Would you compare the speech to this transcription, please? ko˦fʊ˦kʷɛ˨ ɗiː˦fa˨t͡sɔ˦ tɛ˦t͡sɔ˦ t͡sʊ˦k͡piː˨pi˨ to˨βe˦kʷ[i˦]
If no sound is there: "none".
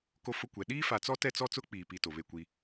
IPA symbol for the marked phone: i˦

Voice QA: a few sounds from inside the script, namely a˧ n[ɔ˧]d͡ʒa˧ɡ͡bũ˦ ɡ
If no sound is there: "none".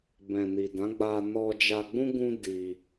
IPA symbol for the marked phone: ɔ˧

